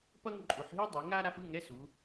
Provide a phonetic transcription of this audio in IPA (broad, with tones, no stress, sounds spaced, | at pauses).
p ʌ˥ ŋ ǃʼ u˩˧ ħ ɦ i˥ dˤ i˩˧ ŋ a˥ ɾ a˥ f ɯ˧˥˧ ŋ ɛ˧˥˧ s u˩˧